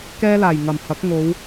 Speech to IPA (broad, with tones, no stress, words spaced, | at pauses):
kɛː˥laː˨˩j ŋɐ˨˩m hɐ˨˥k̚ŋo˨˧w